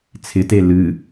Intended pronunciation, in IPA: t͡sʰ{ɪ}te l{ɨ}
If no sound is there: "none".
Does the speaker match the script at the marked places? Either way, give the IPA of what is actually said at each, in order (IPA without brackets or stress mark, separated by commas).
ɪ, ɨ